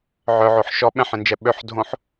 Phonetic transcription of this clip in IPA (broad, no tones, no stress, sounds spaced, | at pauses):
ʕ œ ʕ o ħ ʃ ɔ ɓ ɛ̃ ħ ẽ n d͡ʒ ɛ ɓ ø ħ dʱ õ ħ